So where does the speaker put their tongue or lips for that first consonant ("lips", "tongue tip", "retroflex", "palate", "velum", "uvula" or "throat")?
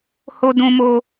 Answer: throat